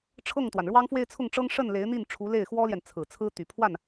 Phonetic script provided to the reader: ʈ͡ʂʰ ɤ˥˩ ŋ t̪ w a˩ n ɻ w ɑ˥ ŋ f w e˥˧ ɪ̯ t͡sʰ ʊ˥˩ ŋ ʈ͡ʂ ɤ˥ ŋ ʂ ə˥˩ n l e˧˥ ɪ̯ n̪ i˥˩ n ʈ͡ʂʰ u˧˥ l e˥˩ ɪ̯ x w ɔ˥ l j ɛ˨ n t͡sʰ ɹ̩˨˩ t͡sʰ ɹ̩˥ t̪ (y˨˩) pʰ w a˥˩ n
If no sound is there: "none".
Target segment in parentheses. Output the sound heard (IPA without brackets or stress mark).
y˨˩